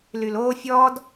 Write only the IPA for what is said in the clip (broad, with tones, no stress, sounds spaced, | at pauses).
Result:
l y˨ l oː˦ fʲ ɔː˦ d